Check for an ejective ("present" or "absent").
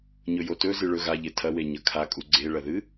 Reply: present